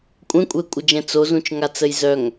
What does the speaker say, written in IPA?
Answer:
kʷʼɛ̃kʷʼɛkʷʼɪd͡ʒɛ̃ t͡sozũt͡ʃŋat͡səj zœŋ

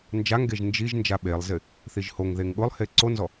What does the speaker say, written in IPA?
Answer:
nd͡ʒaŋɡeʒ nd͡ʒiʒ nd͡ʒaɓelˠzɪ | θiʒhoŋðeŋ ɠʊlˠhe ǀonzɔ

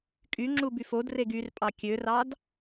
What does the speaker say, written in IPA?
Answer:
kʼyŋ͡ǁubyf odreɡ yrpʼɑ kʲørɑd

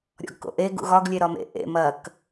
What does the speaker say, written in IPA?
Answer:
ɾʲɔ̰ɡko̰ʔe ɡṵɣɒɡ lʲeɾɒmḛ ʔḛ mɐk

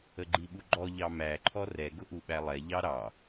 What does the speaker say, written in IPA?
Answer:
əɡ͡ǃiɓuɡ͡ǃɔ ʎɑmæ ǃʰɔrɛ ɡʊʔuɓælˠɛ ʎɑɾɑ

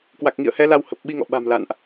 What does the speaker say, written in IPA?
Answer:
kwa˨˩k̚ŋḭ˧˨ə̯hɛ˨˦ la˧whə˨˩p̚ ɓi˧ŋɔ̰˧˨ ɓa̤˨˩m la̰˧˨nʔ

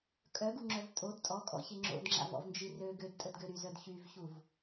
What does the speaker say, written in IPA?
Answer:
kʼœɡuŋ͡ǁœv tʼod tʼɔkʼɔ̰çe ŋ͡ǁo̰dŋ͡ǁa̰vɔ̰vnd͡ʒi rø ɡødtʼədɡø ɾyzœd çyvçuv

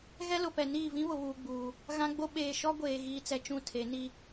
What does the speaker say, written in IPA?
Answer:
ɣɛ˦lʊ˨pɛ˨ niː˦˨vĩ˦βʊ˨ βuː˨ɡ͡buː˨ | ɣã˦ɡ͡bo˦ ɓeː˨ ʃɔ˦ɡʷeː˨ ɣiː˨t͡sɛ˨ t͡ʃũ˦˨tʰe˨˦ni˦

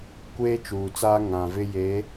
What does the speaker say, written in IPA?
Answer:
kʷeː˦t͡ʃuː˨t͡saː˦ ŋã˨vɪ˦je˨˦

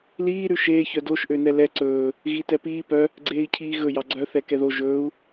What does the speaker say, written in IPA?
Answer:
liː ɾʉʃeː çœdoʃ ʔønɛlɛ ǀɵː | ɣitɛpiː pœ | ɡ͡ǀeːi̯cʰiːɣɵ jɑɡ͡ǀœ θɛkɛðo ʒɵːu̯

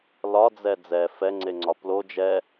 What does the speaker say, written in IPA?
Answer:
lɒd͡zɛ d͡zɛ fɛŋ͡ǀeŋ͡ǀɒ plo d͡ʒɛ

